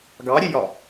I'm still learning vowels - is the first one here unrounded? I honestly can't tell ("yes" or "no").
yes